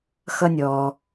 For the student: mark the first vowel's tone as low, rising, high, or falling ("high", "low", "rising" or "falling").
high